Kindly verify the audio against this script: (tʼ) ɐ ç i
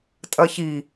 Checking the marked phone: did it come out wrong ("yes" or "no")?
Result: no